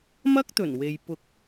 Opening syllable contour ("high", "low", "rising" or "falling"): high